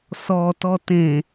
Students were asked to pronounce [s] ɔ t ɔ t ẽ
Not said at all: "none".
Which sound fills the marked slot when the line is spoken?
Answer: s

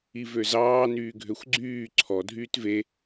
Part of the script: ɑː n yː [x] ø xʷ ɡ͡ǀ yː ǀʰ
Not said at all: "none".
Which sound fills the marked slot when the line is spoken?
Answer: ɡʱ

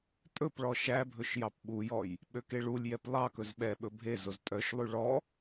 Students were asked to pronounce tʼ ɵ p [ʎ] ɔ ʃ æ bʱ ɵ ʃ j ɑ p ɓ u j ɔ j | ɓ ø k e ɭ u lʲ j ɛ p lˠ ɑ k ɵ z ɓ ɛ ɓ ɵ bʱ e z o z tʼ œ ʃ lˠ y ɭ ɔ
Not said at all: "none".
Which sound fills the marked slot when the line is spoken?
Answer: ɭ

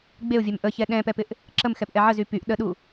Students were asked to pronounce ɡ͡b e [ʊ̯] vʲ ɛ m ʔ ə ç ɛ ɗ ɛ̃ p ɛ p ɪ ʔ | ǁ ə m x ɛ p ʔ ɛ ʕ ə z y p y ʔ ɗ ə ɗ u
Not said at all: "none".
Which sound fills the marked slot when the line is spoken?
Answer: ʊ̯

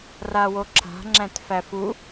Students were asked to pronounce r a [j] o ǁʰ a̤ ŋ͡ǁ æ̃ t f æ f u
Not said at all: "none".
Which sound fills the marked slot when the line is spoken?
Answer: w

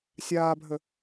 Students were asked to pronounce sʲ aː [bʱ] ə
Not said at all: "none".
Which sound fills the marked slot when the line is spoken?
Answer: bʱ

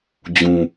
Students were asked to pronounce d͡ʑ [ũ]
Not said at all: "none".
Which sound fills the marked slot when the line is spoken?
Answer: ũ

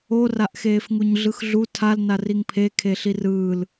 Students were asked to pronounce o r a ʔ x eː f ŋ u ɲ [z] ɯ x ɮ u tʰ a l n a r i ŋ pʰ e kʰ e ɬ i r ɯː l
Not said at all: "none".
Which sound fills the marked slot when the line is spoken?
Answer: ɮ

